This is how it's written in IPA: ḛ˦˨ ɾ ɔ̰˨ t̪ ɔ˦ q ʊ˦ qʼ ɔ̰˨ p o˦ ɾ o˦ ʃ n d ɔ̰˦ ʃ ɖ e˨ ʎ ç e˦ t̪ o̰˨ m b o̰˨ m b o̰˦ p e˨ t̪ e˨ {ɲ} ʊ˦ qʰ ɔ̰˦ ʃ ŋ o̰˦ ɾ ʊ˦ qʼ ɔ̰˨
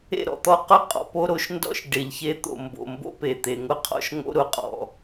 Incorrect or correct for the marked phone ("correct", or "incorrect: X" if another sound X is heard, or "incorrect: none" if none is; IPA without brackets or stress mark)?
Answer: incorrect: ŋ